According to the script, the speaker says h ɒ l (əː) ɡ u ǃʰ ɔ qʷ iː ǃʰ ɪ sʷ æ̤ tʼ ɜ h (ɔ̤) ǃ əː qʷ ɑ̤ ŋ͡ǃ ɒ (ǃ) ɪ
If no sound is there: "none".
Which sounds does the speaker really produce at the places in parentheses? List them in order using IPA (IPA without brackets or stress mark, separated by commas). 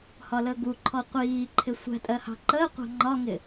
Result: əː, ɑ̤, ŋ